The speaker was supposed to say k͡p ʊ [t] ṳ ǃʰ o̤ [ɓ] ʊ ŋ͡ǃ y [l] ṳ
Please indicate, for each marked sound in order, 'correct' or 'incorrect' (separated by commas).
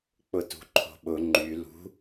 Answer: correct, correct, correct